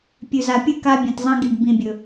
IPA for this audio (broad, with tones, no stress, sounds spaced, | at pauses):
pʲ ʉ˨ z a˨ pʲ ɨ˦ k a˦ bʲ ẽ˨ t zˤ ɐ̃˦ ɡ i˨ ɖ b ĩ˨ bʲ ɵ˨